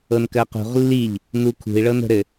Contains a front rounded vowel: no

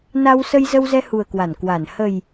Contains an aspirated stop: no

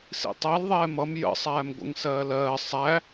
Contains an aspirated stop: no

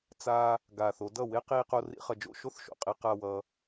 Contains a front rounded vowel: no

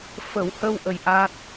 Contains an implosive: no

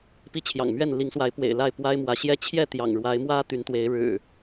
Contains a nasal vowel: no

